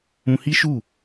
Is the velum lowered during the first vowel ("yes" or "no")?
yes